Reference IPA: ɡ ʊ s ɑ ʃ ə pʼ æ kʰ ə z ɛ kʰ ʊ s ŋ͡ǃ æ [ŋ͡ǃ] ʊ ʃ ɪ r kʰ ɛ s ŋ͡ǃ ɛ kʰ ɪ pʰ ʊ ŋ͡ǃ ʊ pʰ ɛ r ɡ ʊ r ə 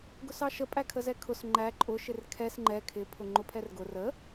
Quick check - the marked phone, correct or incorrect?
incorrect